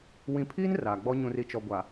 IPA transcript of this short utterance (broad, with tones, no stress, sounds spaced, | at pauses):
w ĩ˨ pʰ i˦ n r aː˨ ɡ͡b ɔ˦ ɲ ũ˨ r i˨ t͡ʃ ɔ˨ ɡʷ a˨